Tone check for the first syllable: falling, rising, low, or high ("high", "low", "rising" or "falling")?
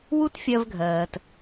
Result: high